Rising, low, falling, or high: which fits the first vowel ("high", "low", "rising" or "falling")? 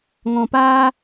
low